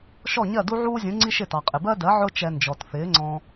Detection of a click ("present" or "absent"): present